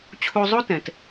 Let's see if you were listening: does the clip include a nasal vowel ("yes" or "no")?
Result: yes